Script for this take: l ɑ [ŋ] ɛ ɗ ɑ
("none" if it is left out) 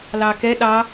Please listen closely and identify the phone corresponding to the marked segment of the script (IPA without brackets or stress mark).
k